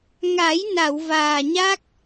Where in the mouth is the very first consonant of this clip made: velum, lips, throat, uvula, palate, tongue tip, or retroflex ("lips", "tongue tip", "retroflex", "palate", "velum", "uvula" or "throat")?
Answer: velum